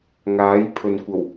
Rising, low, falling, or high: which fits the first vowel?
rising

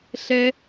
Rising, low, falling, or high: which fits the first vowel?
high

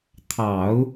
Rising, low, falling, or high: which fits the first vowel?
low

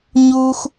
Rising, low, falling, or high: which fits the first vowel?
high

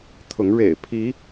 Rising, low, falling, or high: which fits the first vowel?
rising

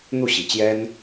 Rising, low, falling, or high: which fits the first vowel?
falling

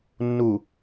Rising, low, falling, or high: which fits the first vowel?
low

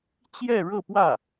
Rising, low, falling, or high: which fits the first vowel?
falling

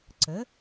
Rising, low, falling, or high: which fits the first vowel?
rising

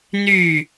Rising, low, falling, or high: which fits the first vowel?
falling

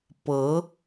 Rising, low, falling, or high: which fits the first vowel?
rising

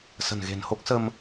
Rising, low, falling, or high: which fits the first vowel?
low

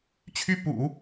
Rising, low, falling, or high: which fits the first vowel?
high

